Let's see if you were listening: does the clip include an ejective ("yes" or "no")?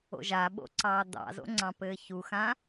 no